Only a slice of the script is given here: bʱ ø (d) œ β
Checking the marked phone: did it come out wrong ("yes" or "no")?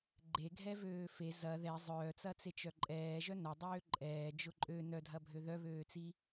yes